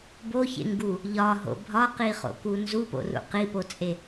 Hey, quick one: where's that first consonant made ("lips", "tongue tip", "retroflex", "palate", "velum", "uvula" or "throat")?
lips